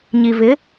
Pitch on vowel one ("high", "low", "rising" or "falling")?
low